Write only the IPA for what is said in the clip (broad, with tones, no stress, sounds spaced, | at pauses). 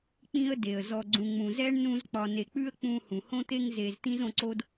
k͡p ĩ˦ ə̯ d e˩ ə̯ z ɔ˨ ɡ͡ǀ ũ˨ ŋ͡m ũ˨ z ɛ˥ ɳ n ũ˦ z k͡p ɒ˨ n e˨ k͡p ʉ˥ ə̯ k͡p ũ˦ h ũ˩ h õ˦ t̪ e˦ ŋ z e˨ z t̪ ĩ˥ z õ˦ ǀ o˥ d